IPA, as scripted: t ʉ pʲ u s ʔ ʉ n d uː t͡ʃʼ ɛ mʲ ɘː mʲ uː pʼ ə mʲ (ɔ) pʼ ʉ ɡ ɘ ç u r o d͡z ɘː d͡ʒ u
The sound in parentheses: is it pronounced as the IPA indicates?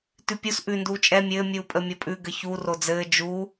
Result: no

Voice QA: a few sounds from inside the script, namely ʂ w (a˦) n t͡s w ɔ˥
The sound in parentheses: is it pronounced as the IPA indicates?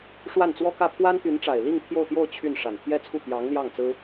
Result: no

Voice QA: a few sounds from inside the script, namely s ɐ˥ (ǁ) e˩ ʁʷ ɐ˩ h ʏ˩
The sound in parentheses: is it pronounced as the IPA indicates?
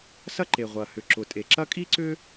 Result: no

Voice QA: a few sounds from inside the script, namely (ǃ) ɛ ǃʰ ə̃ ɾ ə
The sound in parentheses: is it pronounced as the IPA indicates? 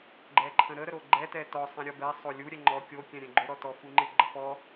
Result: no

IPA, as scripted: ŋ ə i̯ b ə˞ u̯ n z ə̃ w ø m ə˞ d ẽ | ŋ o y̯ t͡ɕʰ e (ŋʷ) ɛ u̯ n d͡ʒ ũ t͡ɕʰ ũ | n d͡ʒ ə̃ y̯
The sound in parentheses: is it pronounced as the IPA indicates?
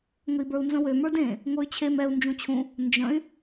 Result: no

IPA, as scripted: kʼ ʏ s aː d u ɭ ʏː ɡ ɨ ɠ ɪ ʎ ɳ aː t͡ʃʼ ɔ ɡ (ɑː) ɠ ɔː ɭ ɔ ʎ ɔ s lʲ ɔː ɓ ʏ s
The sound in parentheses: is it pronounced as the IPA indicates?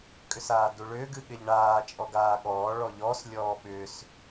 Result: no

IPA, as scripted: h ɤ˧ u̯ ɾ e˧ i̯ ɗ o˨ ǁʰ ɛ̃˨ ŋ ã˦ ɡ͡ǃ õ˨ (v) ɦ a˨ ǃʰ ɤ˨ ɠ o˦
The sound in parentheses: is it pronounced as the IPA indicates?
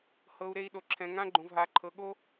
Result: yes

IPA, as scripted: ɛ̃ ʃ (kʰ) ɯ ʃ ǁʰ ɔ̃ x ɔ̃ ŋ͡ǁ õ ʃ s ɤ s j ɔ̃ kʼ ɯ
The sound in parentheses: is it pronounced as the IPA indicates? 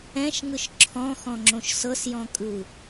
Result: no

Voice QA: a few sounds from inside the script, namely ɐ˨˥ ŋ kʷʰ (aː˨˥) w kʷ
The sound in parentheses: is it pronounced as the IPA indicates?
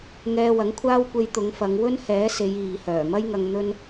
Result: no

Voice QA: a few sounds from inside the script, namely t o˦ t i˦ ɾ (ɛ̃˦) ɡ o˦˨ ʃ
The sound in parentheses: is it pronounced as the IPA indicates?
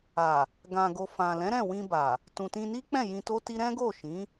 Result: yes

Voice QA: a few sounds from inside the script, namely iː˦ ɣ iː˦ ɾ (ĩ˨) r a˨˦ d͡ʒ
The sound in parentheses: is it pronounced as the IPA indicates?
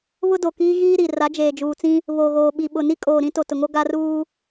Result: no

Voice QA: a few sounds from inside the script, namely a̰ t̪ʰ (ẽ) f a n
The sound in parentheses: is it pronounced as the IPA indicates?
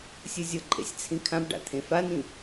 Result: yes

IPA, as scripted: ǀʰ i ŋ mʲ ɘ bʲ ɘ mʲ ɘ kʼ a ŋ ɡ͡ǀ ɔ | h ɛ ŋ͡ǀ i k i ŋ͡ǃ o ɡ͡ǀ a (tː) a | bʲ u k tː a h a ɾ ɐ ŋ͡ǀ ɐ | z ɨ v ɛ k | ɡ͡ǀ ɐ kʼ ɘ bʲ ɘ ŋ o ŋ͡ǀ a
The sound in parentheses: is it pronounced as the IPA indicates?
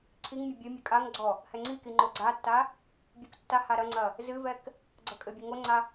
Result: yes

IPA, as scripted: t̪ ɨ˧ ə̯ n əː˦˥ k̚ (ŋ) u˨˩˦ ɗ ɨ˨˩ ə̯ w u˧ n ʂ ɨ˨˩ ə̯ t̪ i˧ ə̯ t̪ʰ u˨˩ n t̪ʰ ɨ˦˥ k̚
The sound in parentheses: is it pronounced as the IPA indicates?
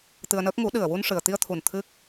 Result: yes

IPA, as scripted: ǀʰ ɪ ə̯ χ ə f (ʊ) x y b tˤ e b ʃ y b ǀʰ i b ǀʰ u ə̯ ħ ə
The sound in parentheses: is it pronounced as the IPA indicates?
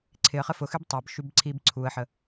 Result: yes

